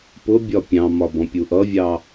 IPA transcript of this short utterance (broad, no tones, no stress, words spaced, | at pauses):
pʊbʲɒ pʲɑ̃mɒ bɔ̃pʲuʔʌvʲɑ